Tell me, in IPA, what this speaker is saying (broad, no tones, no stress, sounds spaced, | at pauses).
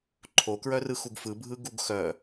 ǃʰ o k ɹ œ r ɯ x u ɡ f ɯ bʱ ɯ ɡ u ɡ x œ